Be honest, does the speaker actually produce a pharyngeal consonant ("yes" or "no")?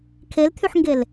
yes